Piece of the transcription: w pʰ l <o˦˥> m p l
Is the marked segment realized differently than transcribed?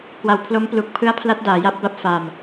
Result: no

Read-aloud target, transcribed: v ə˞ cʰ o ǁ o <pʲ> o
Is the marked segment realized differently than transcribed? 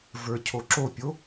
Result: no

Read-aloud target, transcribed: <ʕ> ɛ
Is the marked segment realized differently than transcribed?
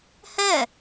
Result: yes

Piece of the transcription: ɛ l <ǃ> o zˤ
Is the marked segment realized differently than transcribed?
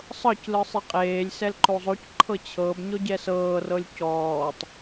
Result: no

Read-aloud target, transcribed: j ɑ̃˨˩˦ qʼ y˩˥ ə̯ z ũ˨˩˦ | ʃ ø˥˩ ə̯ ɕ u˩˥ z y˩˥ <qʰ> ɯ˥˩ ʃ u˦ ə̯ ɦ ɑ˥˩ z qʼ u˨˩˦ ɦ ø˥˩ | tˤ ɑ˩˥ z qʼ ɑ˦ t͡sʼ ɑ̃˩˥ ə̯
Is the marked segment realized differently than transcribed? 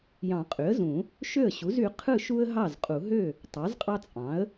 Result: no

